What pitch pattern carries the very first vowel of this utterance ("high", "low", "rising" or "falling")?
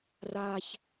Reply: low